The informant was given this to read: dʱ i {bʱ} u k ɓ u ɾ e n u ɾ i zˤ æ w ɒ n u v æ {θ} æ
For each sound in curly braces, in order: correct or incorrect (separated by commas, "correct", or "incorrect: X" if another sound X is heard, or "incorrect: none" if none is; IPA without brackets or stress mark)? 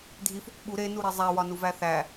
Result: incorrect: f, correct